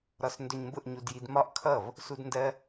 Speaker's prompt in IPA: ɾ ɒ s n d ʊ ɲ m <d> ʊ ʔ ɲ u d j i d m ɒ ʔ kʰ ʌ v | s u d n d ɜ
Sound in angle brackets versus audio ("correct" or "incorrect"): incorrect